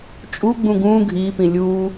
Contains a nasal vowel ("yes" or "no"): yes